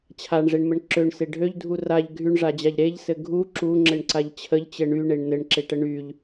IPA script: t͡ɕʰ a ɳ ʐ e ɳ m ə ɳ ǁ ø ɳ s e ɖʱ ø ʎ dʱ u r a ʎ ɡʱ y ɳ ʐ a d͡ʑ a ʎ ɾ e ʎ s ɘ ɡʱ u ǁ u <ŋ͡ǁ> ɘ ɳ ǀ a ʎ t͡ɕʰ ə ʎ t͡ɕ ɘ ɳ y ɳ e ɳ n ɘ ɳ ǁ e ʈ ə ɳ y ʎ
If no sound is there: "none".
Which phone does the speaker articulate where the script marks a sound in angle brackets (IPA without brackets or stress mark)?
ŋ͡ǁ